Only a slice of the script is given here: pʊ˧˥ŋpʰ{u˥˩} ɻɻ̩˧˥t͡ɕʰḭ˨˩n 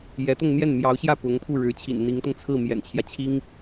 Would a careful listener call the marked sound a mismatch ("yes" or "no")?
no